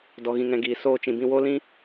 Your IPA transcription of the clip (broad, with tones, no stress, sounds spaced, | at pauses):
d ɔ˨ ɣ ĩ˨ ŋ ɛ̃˨ ɡ iː˨ s oː˧ t͡ʃ ĩ˨ b ĩ˧ w o˦ l ĩ˦